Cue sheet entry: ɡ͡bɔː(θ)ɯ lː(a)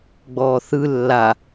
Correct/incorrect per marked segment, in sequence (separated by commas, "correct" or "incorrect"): correct, correct